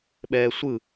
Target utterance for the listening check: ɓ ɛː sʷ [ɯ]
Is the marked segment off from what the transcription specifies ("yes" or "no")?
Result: no